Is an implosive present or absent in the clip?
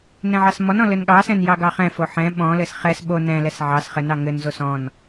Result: present